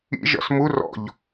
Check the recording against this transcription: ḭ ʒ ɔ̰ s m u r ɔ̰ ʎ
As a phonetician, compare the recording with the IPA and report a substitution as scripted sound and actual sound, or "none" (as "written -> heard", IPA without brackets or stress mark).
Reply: none